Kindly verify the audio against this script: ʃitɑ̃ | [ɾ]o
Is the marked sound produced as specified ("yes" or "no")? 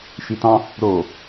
yes